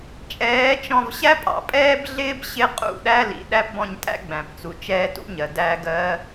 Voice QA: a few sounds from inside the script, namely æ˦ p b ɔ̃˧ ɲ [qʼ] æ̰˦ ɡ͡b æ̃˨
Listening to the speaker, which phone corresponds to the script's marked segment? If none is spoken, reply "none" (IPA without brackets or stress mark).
tʼ